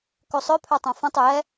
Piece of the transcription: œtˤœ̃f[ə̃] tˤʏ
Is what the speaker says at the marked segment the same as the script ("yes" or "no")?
yes